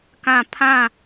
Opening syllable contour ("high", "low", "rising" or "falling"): falling